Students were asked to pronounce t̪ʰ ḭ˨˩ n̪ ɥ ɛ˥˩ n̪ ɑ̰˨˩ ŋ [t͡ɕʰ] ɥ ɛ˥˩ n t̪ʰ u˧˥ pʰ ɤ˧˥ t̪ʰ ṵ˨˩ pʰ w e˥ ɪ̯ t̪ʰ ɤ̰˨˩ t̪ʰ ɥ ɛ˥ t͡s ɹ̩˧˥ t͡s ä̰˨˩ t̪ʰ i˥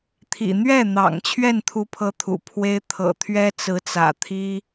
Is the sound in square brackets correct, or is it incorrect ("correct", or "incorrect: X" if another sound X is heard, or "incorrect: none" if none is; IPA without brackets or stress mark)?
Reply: correct